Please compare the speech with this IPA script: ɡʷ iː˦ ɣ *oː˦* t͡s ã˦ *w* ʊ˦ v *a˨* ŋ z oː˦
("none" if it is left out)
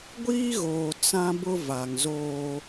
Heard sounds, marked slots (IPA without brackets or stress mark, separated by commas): oː˨, b, a˨